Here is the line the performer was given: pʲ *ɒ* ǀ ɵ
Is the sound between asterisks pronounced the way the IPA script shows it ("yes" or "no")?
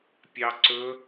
no